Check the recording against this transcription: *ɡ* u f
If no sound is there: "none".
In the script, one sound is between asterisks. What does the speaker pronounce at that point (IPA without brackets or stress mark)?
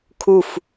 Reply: kʰ